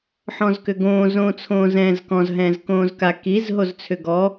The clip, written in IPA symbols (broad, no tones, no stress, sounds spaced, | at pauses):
ħ ɔ̃ z k ʏ ɡ õː z õː t͡sʰ õː z ɛ̃ː z k ɔ̃ z ɦ ɛ̃ː z k õː z k a k i z ɦ o z t͡sʰ ʏ ɡ ɔ